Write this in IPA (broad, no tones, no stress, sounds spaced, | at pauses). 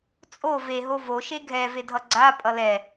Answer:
t͡sʼ o v e ɦ o v o ʃ e ɡʱ ɛ v e dʱ ʌ ɡ͡ǀ a pʼ ʌ l ɛ